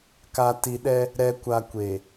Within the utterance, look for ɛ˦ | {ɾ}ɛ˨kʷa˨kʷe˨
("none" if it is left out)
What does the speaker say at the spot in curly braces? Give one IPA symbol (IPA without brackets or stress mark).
ɾ